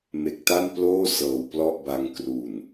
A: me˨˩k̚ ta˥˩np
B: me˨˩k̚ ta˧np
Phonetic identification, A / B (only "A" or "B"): A